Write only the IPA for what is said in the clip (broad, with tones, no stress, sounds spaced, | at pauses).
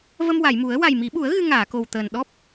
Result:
v ə˧ m w a˨˩˨ j m u˨˩˦ ə̯ w a˨˩ j m i˨˩˦ ɓ u˨˩˦ ə̯ ɣ ɨ˧ ŋ aː˨˩˨ k o˨˩ w t̪ əː˨˩ n ɗ ɔ˦˥ p̚